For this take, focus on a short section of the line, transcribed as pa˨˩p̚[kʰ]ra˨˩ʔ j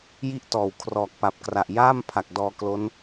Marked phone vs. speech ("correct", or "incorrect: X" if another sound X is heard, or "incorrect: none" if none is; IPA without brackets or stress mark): incorrect: k